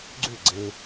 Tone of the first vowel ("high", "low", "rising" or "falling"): falling